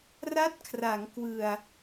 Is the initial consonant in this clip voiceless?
no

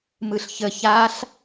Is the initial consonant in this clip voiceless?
no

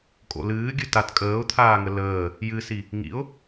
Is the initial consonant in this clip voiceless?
yes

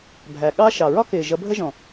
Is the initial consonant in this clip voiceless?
no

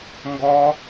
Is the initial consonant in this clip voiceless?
no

